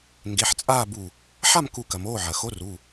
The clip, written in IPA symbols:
ŋ ɡ e˩˧˩ ħ t͡sʼ aː˥˨ b u˧˩ | ħ a˥˨ m k u˧˩ k ɐ˩ m oː˩˧˩ ʕ ɐ˩ x o˧˥ r u˩˧˩

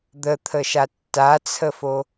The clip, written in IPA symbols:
d̪ ə t̪ʰ ə ʃ a tː a t͡sʰ ə f o

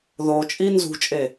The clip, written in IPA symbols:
ð o t͡ʃʼ i n z ṳ t͡ʃʼ e

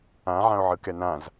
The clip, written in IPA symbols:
ã ʕ ã o̯ ʕ ɯ k ɛ n ã z

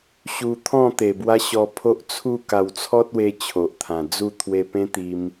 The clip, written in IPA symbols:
ɕ u˧ t̪ʰ ɔ̃˥˧ t̪ e˨˩ b w a˦ ɕ ɔ˧ pʰ o˦ ʔ t͡sʰ u˥˧ k a˧ w t͡sʰ ɔ˦ t̚ w e˧ t͡ɕʰ o˨ ʔ t̪ʰ ã˨˩ d͡z u˥˧ t̪ʰ w e˧ p ẽ˦ t̪ i˧ m

